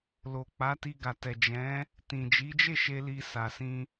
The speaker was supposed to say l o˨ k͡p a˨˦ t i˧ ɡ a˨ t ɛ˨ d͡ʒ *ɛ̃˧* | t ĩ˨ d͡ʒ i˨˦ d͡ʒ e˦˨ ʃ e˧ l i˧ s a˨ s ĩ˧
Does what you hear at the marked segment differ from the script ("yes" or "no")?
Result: yes